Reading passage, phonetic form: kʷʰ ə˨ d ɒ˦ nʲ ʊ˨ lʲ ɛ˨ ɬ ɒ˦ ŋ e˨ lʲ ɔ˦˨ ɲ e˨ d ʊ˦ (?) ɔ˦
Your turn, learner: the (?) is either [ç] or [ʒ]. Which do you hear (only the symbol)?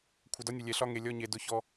ç